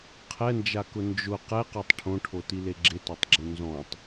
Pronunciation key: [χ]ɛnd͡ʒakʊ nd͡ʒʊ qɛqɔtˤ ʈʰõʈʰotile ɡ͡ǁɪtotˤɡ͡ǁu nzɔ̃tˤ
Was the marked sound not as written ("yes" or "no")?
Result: yes